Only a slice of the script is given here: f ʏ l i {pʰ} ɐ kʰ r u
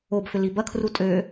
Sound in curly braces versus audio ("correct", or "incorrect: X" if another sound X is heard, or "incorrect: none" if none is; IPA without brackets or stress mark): incorrect: b